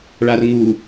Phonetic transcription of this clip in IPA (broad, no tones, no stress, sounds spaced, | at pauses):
ɭ a r ŋ u